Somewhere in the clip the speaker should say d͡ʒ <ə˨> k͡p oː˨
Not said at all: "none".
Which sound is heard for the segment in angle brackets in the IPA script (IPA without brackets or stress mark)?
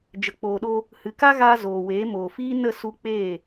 ə˨